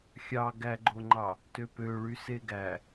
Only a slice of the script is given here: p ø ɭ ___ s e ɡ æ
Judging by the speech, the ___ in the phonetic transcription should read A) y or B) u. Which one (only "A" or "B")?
A